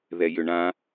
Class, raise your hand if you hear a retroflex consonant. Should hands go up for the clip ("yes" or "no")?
yes